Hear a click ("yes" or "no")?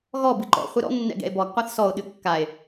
yes